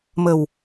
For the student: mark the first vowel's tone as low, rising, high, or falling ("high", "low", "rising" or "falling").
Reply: low